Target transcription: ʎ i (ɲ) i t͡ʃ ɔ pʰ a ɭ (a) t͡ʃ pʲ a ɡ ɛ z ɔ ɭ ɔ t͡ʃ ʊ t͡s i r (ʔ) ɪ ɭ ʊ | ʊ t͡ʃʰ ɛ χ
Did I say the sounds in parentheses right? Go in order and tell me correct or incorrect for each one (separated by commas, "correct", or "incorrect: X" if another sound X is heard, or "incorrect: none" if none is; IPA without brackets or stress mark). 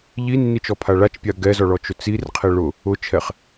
incorrect: nː, correct, incorrect: qʰ